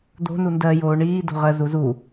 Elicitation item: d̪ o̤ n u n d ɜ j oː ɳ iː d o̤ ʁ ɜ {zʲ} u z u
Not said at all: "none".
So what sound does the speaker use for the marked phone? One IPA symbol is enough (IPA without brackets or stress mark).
z